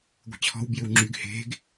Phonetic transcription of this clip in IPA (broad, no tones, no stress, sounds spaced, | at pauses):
ɡʷ e̤ t͡ɕʰ ɔ̤ w b j ʏ w ŋ͡ǁ y ɡ h e̤ ɡ